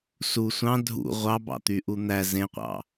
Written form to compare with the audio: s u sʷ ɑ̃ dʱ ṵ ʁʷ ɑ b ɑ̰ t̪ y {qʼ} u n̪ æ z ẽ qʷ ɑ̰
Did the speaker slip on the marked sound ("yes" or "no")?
yes